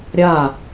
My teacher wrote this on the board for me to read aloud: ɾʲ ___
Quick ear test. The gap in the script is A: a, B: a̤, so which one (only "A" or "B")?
A